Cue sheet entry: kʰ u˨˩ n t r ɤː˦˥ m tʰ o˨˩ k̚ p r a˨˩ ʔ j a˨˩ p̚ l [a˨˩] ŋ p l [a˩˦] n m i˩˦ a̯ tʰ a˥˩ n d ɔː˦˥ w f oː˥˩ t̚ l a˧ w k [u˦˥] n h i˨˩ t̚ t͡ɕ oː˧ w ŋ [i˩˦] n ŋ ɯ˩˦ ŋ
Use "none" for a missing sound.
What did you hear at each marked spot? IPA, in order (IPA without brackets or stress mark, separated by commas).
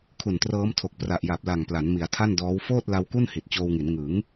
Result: a˨˩, a˩˦, u˥˩, i˩˦